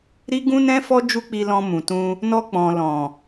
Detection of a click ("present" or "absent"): absent